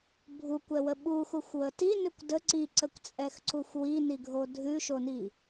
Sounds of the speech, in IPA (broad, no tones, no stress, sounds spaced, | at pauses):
bʱ u kʷ ɛ w ə ɓ u x u xʷ w ə t i n ʉ kʷ d ə ǀ i ǀ ə kʷ t͡sʼ ɛ x ǀ u xʷ w i n i ɡʱ o dʱ ʉ ʃ o n i